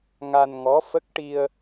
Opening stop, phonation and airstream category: plain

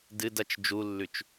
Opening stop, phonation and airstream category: plain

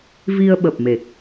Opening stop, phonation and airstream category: implosive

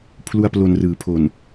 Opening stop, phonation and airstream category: aspirated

